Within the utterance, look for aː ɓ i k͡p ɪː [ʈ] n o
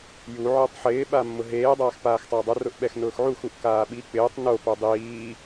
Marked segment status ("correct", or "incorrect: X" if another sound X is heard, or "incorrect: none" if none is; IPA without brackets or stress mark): incorrect: tˤ